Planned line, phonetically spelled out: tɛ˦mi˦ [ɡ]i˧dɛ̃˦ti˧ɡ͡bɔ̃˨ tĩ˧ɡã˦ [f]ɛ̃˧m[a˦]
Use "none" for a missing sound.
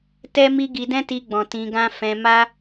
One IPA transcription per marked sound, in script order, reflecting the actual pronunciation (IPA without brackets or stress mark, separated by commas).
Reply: ɡ, f, a˦